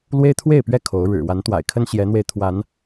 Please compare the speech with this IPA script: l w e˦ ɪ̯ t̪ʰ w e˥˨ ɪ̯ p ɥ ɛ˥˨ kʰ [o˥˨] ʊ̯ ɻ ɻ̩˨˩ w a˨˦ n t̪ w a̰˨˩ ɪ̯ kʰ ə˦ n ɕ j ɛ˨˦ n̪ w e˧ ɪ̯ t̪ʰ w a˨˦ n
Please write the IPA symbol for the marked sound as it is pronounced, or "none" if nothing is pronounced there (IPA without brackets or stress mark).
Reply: o˨˦